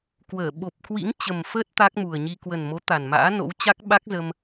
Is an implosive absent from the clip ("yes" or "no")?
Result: no